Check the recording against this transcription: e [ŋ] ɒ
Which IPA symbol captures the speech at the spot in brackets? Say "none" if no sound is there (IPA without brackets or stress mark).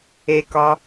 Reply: k